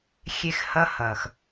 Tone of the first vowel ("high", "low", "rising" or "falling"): high